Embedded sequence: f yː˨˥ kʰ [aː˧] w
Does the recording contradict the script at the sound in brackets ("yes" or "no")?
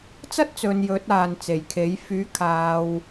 yes